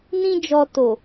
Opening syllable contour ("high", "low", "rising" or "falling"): high